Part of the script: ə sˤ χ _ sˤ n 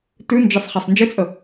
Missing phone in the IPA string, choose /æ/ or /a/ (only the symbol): a